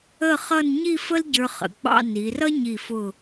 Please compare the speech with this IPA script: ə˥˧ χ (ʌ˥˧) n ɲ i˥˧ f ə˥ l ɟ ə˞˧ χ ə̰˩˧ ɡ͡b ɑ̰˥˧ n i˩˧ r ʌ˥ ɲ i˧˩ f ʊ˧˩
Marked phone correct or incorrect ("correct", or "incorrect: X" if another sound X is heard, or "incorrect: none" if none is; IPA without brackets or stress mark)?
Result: correct